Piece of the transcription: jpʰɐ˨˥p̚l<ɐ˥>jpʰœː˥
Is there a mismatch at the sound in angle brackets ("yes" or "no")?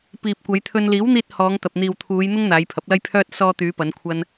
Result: no